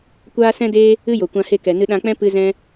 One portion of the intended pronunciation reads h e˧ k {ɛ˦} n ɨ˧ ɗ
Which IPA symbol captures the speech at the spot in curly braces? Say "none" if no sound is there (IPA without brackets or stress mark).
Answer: ɛ˨